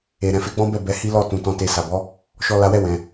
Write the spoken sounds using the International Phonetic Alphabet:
e˨ ɾɛ̃˨fe˨˦ɡ͡bɔ̃˦bɛ˦˨ bɛ˨˦hi˦ lɔ˦˨tũ˨ tɔ̃˧te˧ sa˨bɔ˨˦ | ʃɔ˧la˧wɛ˦ wɛ̃˧

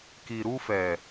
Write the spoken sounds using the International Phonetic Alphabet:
ki˨ɾu˧fɛ˨

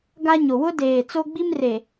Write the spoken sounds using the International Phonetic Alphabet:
ɡa˦ɲo˨ wʊ˦deː˨t͡so˦ɡ͡bi˦m re˨

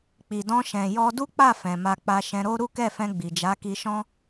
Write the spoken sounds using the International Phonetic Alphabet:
k͡pi˨dɔ̃˧ʃɛ̃˨ jɔ˧du˦k͡pa˦˨ fɛ̃˨ma˧k͡pa˧ ʃɛ̃˧ɾo˦ ɾu˦kɛ˦˨fɛ̃˧ ɡ͡bi˨d͡ʒa˨˦ki˧ʃɔ̃˦

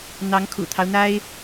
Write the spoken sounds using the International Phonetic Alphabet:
n̪ɑ˧˥ŋkʰṵ˨˩t̪ʰɑ˦ʊ̯n̪a˥ɪ̯

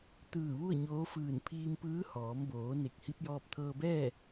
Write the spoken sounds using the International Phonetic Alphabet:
t̪ɯː˧˩ ʋu˥˨ə̯ɲoː˧˥fɯː˧˩n pʰiː˧mpɯː˧˥ hɔː˩˧mboː˩˧ ne˧˩k̚hi˧˥p̚jɔː˧p̚ t̪ʰɤː˧bɛː˥˨

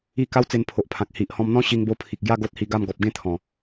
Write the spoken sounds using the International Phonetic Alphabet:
i˥˧ ka˦wt͡se˧npʰo˨ʔpʰã˨k̚ hi˨ʔ hɔ̃˧mn̪ɔ̃˦ ɕi˧ŋbo˧pʰi˨k̚ɡja˥˧ ɡo˦t̚hi˧ɡa˥˧m ɡɔ˨p̚ɡẽ˥˧ t̪ʰɔ̃˨˩

